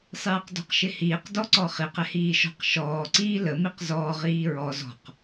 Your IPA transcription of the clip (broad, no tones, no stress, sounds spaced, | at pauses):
sˤ iː q d ɔ̤ q ʃ ɪ h iː q d ɔ ǀ ɔ χ i q ɪ h iː ʃ ɔ̤ q ʃ ɔː ǀ iː l ə m i q z ɔː ʁ iː ɹ ɔ z ɔ̤ q